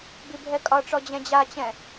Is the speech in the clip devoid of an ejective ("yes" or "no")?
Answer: no